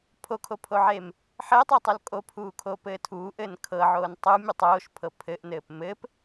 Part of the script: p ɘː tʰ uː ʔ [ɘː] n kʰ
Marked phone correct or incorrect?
correct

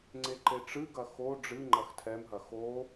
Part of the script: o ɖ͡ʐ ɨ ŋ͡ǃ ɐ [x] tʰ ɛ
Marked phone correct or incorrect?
correct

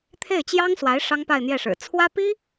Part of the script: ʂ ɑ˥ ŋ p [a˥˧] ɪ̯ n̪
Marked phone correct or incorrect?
correct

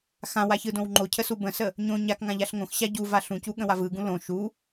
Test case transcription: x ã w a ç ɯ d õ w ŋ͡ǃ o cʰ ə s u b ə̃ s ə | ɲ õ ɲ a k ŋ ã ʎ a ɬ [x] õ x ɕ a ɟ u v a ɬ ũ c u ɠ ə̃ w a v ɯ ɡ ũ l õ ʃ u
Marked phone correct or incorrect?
incorrect: ŋ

